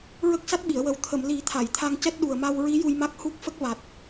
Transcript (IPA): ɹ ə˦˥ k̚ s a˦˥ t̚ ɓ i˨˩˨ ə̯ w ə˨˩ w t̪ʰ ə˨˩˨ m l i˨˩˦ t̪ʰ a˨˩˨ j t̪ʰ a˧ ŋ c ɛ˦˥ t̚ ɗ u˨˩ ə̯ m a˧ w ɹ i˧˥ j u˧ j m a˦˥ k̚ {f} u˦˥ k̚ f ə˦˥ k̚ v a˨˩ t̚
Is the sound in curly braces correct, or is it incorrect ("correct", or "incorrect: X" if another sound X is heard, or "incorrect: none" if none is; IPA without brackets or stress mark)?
incorrect: h